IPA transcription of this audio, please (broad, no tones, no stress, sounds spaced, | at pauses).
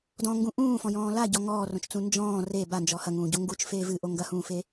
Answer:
d ɔ̃ ŋ ɡ ũ ʔ ũː f ɔ̃ j ɔ̃ː l a ɟ ɔ ŋ ɔː r õ t͡ʃ t͡s ũ n d͡ʒ ɔ̃ː r e b a n d͡ʒ ɔ h ɐ ŋ ũː ɟ o ŋ ɡ u t͡ʃ f eː v ɨ ʔ o ŋ ɡ ɐ h ũː f e